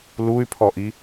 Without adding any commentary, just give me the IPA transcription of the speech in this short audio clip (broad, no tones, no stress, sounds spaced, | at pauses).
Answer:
l u y̯ pʰ ɔ ʔ i